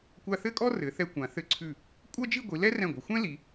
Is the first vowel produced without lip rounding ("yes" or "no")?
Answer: yes